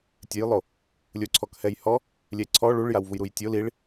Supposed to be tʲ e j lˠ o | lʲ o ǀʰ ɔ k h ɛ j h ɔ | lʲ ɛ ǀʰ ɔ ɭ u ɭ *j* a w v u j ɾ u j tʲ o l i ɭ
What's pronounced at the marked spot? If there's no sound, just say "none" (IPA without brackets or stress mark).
j